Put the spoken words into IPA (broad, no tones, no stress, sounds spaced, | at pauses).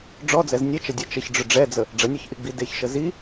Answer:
ɖ͡ʐ ɔ d͡z ɛ z nʲ ɛ t͡ʃ ə dʲ ɛ t͡ʃ ə ç ɖ͡ʐ ʏ ɖ͡ʐ ɛ d͡z ə | ɖ͡ʐ ə nʲ ɔ ç ʔ i ɡ͡b i d e ç ʃ ə z i